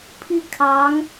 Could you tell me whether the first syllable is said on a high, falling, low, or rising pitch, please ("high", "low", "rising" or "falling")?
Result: falling